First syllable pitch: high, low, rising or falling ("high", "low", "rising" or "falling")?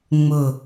falling